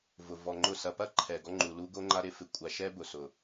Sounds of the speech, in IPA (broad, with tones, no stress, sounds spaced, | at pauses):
v ʊ˨ v ɔ˨ ŋ͡ǃ ʊ˦˨ s ɐ˨ p ɐ˦ ǃʰ ɛ˨ ɡ ɔ˦ ŋ͡ǃ u˨ l u˦ ɡ o˦ ŋ͡ǃ a˦ ɾ ɪ˦ f ɪ˨ kʷʼ a˨ ʃ ɛ˦ b ʊ˨ s ʊ˨